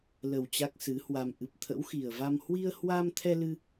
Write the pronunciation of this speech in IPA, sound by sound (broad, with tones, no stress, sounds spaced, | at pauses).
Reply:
l ə˨˩ w t͡ɕ a˦˥ k̚ s ɨ˨˦ h w a˧ m ʔ ɨ˨˩ p̚ t̪ʰ ə̰˧˥ w x i˨˩ ə̯ v a˧ m h w i˧ ə̯ h w a˧ m t̪ʰ ɛ˧ l ɨ˧